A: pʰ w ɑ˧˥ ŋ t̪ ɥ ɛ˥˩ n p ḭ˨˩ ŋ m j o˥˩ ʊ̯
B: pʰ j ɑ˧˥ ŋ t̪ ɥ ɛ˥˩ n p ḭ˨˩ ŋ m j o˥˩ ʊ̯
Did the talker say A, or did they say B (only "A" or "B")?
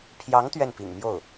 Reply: B